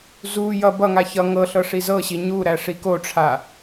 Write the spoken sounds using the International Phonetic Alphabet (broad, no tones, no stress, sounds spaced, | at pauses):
z u j ʌ b ʌ ŋ a ç ʌ ŋ ɤ ɬ ɤ ʂ i z ɤ ɕ i ɲ u ɾ æ ʂ i k o ʈ͡ʂʰ a